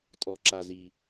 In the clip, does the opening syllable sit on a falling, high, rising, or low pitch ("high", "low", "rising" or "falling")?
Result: low